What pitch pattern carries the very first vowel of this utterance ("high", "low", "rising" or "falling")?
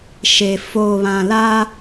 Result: low